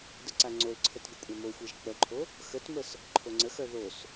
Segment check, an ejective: present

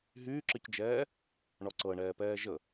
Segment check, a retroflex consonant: present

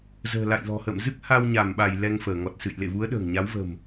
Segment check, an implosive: present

